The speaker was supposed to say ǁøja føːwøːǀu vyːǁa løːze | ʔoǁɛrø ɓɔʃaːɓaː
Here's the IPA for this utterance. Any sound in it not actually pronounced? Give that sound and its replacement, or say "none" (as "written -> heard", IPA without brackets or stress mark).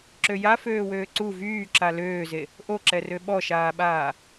none